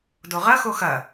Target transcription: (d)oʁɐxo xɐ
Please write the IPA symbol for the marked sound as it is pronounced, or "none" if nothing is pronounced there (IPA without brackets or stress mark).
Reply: d